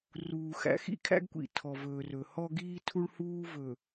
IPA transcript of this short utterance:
ruː˨ xæ̰˨xḭ˦kʰæ̰˦ɡkʷḭ˨ tʰɔ˨vɵː˨rɵ˨ hɔ˦ɡiː˦ tʰu˦ɭhuː˦ vɵ˨

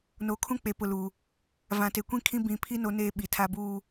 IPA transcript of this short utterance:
no˨ kʰũ˦k͡pe˨pʊ˨lu˨ | vã˨te˨kʷĩ˦ kʰĩ˦bĩ˨˦pʰi˦ no˦neː˦ ɓi˨tʰa˦buː˦

